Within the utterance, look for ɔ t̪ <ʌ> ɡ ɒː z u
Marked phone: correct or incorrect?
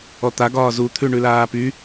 incorrect